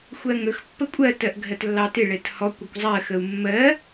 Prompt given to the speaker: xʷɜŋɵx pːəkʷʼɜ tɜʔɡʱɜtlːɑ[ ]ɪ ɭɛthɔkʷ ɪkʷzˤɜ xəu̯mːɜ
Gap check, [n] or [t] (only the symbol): t